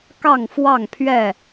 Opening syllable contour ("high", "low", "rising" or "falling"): falling